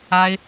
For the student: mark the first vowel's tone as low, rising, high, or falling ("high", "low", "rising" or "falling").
high